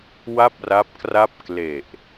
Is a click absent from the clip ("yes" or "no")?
yes